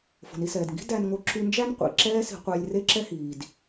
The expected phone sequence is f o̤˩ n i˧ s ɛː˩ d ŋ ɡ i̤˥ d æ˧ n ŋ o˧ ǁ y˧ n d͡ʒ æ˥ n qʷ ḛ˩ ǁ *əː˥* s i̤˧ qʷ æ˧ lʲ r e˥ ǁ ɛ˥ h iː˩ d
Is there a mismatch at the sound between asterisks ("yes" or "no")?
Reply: yes